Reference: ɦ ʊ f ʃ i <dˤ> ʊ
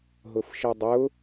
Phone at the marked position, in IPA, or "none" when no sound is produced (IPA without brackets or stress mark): dˤ